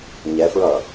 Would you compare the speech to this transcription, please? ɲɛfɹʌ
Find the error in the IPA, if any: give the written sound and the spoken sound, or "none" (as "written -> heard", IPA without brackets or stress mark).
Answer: none